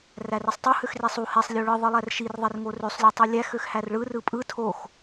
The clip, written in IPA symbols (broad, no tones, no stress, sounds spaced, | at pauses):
r æ r e sˤ tˤ u h ø x r i sˤ u h e sˤ lʲ o ɭ ɯ ðˤ ɯ lˠ æ r ʃ i r ðˤ e r ŋ o r ø sˤ lʲ u tˤ u lʲ æ x ø x h æ r ɭ ɯ r ɯ pʼ ɯ tʰ o x